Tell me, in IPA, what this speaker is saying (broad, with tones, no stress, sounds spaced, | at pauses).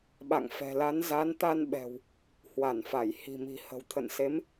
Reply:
ɓ a̰˧˨ ŋ f ɛ̤˨˩ l a˨˦ n z a˨˦ n t̪ a˧ n ɓ ɛ̤˨˩ w | h w a˧˩ n f a˧˩ j h i̤˨˩ m i̤˨˩ h ə̤˨˩ w t̪ʰ ə̰˧˨ n s e˨˦ m